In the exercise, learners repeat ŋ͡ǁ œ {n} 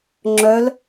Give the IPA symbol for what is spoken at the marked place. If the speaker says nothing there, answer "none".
l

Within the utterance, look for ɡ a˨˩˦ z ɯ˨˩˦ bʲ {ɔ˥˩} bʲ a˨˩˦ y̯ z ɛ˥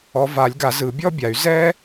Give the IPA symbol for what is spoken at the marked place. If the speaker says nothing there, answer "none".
ɔ˥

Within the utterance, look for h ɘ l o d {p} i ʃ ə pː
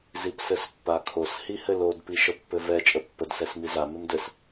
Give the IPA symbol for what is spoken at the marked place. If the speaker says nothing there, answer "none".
p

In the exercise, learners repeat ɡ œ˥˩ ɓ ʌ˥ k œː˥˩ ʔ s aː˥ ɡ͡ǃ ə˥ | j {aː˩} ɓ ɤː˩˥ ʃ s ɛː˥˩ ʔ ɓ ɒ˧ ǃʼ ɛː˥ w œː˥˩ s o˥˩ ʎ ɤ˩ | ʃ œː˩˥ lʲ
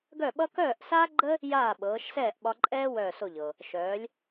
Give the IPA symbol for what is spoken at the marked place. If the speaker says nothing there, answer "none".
aː˥˩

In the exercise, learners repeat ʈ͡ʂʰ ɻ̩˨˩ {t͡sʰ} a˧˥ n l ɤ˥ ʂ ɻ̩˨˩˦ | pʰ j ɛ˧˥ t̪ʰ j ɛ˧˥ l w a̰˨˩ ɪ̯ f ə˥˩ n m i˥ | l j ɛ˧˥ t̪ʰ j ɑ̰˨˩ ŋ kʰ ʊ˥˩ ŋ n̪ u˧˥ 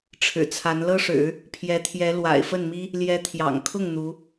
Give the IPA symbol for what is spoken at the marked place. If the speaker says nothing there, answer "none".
t͡sʰ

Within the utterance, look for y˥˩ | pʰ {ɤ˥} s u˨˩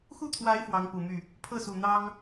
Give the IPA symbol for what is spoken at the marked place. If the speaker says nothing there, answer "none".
ɤ˥˩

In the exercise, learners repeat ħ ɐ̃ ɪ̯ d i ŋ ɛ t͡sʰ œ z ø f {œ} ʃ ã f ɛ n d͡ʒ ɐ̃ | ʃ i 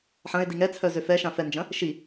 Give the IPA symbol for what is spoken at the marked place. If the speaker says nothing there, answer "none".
ɛ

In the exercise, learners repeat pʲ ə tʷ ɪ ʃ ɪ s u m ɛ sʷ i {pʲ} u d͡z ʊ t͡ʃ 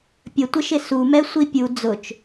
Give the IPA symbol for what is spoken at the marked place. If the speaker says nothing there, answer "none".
pʲ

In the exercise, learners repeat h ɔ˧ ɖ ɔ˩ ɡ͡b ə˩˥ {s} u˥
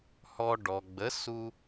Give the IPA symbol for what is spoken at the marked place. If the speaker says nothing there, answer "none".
s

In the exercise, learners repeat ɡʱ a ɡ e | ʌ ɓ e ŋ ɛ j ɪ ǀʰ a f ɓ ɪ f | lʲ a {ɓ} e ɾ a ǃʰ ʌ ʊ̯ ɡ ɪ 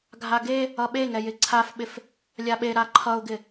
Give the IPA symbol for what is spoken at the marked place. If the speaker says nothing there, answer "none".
ɓ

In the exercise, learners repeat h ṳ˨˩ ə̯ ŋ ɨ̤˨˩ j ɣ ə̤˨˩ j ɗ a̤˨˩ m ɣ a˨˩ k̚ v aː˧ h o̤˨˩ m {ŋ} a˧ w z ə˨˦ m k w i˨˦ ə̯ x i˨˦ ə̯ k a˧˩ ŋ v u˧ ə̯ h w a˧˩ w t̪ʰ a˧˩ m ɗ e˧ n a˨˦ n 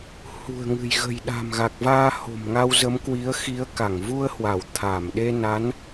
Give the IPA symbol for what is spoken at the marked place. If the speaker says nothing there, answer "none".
ŋ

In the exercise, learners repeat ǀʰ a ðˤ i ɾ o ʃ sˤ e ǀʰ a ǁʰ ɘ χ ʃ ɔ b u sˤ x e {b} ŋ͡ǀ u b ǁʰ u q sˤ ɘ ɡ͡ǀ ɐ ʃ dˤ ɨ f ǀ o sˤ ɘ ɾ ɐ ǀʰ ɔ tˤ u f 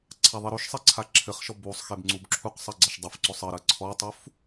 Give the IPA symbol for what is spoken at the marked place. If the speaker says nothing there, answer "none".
b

